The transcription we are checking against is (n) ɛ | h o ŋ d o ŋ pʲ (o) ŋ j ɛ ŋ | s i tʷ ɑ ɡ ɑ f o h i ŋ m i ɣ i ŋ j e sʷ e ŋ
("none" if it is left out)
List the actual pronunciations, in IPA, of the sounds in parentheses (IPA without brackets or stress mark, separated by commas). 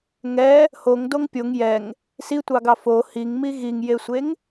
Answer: ŋ, o